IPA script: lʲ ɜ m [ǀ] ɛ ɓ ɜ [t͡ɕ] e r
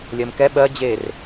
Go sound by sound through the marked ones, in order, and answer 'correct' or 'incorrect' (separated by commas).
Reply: incorrect, incorrect